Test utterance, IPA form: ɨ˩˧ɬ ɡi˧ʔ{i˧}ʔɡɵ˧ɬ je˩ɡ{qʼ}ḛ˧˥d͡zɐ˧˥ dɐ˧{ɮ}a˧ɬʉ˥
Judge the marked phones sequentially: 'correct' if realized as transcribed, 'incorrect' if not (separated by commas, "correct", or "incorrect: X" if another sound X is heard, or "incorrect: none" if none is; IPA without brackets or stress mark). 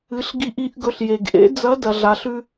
correct, incorrect: ʔ, correct